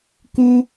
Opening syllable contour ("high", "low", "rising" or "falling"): high